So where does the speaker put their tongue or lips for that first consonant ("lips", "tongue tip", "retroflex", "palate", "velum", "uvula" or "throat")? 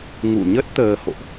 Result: velum